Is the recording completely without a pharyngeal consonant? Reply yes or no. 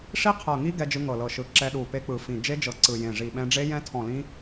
yes